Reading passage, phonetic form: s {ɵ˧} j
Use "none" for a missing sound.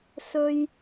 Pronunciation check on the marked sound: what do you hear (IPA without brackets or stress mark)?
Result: ɵ˧